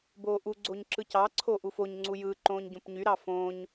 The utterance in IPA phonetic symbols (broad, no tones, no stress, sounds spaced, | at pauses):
b oː ʔ u ɡ͡ǀ o ɲ ǁ ɯ c ɑ ǀʰ o ʔ u f o ɲ ŋ͡ǀ u j ɯ ǃ õː ɲ ɟ õ p ɲ y ɾ ɑ f õː ɲ